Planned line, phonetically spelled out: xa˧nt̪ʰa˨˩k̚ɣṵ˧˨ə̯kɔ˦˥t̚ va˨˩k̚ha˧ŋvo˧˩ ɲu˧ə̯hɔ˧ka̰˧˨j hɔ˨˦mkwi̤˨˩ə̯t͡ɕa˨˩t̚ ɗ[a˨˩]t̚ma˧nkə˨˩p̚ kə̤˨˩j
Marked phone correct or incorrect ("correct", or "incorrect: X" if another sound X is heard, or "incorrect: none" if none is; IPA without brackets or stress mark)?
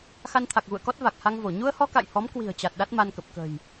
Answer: incorrect: a˦˥